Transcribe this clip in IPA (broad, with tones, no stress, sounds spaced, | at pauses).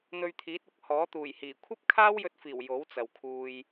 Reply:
n̪ ɵ˧ ɥ t̪ʰ iː˨˥ t̚ ʊ˨˥ k̚ h ɔː˨˥ t̪ uː˨˩ j h iː˨˩ kʷʰ ɐ˥ p̚ kʰ aː˥ w j ɵ˧ t̚ f iː˨˩ w j o˨˥ w t͡s ɐ˨ w kʰ uː˧ j